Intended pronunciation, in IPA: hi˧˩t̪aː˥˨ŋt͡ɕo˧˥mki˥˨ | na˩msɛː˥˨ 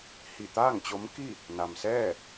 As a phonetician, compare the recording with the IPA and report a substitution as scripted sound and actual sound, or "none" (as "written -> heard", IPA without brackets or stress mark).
none